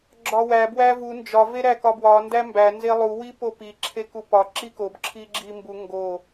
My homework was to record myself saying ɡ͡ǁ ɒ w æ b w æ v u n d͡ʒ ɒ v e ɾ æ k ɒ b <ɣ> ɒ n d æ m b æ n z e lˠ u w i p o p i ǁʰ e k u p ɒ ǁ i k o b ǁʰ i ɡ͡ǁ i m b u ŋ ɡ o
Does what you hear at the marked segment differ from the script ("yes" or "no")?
yes